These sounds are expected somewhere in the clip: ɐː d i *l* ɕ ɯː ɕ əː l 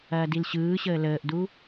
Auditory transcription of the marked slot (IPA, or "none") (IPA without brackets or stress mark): l